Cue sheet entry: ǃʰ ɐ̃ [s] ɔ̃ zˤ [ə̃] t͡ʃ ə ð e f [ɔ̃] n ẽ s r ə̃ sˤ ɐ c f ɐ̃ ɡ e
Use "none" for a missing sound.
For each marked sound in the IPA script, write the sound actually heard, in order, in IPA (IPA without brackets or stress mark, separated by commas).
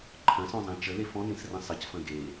s, ɛ̃, ɔ̃